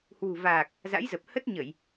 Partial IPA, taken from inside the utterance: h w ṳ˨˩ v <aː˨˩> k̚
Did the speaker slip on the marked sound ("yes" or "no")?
no